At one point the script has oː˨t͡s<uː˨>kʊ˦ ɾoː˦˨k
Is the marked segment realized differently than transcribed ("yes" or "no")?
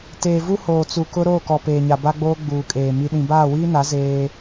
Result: yes